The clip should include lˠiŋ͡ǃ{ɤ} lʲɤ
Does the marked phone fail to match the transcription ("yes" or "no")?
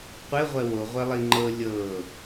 no